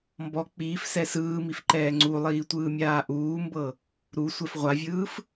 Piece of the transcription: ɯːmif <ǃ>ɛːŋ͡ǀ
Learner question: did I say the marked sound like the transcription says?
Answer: yes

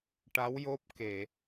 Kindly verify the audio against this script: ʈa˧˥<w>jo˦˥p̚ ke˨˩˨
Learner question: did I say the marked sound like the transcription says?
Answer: yes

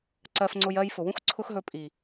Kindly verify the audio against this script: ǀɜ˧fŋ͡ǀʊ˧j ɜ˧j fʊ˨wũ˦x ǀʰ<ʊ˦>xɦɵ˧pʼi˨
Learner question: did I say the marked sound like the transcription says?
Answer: yes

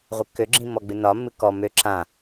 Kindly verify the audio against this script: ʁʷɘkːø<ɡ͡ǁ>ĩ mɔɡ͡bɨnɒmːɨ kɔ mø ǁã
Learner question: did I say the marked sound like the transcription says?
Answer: yes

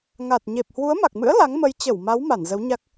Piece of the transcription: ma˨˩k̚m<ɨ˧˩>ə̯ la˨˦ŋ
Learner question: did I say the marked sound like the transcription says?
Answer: no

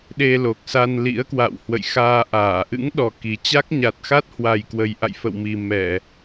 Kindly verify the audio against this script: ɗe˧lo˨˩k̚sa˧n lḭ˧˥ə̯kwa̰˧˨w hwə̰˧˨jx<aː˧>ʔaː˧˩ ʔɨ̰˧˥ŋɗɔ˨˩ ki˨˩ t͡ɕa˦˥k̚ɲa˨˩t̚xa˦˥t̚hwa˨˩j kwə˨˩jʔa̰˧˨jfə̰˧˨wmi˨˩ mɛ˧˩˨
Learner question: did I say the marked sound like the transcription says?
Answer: yes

